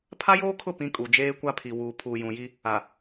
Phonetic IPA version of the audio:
pʰa˦joː˦kʰʊ˦˨ pĩ˦kʼu˨ d͡ʒeː˦kʷa˦pʰi˨ wuː˨pʰuː˨jũ˨ji˦ | a˨

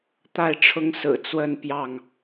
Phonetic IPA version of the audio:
t̪a˥˨ɪ̯ ʈ͡ʂʰʊ˦ŋsɹ̩˨˩ t͡swə˥˨npjɑ˥˨ŋ

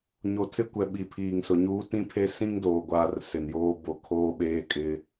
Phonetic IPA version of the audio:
ɲo˨tʰɪ˦kʷɛ˨ ɓi˨pʰiː˨ŋsʊ˨ɲuː˦ tĩ˦pʰe˦ sĩ˦ŋdoː˨ɡʷaː˨r sɪ˨njoː˦bo˦˨ kʰoː˦ɓeː˦ kʼɪ˦

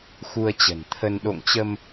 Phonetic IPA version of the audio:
xu˧ə̯t͡ɕə̤˨˩nt̪ʰə˧n ɗo̰˧˨ŋt͡ɕə˧m

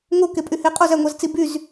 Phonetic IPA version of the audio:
ŋokepʼyheː qʼozæŋʷɑzt͡si byz

